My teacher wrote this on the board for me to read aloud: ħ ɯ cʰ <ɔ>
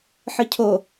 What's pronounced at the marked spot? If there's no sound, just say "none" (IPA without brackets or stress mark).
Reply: o